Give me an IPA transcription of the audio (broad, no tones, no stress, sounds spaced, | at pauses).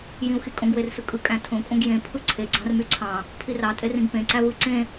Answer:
j ĩ u̯ x i kʼ õ ɡ w e r s ɯ kʼ ɯ kʼ æ̃ tʰ õ kʼ õ ɡ j ẽ pʰ ɯ ǀʰ e ɡ͡ǀ ɑ̃ r m y ǀʰ ɑ̃ | pʰ i r ɑ tʼ e r ĩ ɡ p ẽ ǀ æ v ɯ ǀ ẽ